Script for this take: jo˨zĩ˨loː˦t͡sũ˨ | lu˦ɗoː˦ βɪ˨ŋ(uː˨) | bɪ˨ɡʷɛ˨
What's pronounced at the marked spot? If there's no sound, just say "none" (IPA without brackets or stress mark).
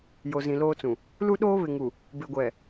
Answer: u˨